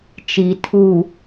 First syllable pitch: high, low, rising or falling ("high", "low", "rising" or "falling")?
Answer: low